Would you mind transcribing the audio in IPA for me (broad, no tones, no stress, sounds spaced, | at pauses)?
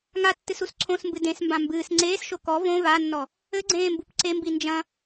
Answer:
ŋ a tː ɨ s u s ǀʰ õ s m b ɨ d ẽ s m b ã m b ɨː s ŋ͡ǀ eː s ʃ o k ɔ v õ v a nː ɔ | ɘ ɡ͡ǀ ẽː m b u p ǀ e m b i n d͡ʒ ɐ̃